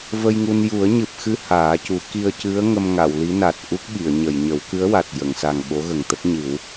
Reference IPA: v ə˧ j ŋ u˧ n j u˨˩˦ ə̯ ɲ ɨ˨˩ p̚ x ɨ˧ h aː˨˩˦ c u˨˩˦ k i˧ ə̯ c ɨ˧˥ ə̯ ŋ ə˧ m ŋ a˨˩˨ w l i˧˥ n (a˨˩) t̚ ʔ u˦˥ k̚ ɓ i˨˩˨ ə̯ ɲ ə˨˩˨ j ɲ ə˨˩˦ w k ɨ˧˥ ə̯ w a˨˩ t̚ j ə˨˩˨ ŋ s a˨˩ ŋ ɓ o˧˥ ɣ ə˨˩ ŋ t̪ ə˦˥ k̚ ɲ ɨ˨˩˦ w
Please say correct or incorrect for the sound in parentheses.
correct